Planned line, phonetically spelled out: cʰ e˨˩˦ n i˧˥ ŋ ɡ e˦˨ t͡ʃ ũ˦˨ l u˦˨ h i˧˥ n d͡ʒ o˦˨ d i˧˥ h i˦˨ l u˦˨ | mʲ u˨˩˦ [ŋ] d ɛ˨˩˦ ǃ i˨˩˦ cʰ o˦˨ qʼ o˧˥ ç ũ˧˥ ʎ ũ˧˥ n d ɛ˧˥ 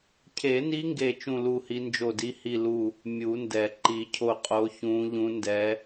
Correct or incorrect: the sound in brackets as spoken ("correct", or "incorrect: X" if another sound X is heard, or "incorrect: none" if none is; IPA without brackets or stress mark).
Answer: incorrect: n